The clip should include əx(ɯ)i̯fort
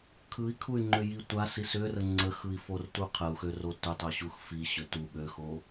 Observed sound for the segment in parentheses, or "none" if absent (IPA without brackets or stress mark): ɯ